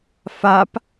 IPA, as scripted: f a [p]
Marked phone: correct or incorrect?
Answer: correct